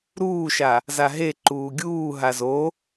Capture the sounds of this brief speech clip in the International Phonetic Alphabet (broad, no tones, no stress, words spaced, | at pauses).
ɾuːʃa | zaɦe ǃuːɡʲuː ɦazo